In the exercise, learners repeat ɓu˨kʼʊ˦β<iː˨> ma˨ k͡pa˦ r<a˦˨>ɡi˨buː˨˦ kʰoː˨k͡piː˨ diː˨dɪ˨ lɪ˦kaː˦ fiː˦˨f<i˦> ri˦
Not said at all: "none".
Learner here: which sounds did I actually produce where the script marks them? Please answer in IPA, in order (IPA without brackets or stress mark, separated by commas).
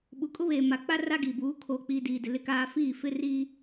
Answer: eː˨, a˦, ɪ˦